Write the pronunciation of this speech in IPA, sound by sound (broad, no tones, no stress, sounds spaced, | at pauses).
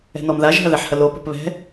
ɛ̤ n ɔ m ð a ʒ ɦ ɐ ð ɛ ħ h ɐ l o p o̤ p β ɛ̤